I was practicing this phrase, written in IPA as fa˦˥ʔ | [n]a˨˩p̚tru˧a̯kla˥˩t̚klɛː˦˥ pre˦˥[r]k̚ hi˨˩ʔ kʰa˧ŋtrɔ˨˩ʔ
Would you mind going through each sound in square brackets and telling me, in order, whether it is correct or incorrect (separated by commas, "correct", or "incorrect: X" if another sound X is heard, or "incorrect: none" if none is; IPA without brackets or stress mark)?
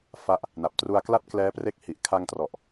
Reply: correct, incorrect: none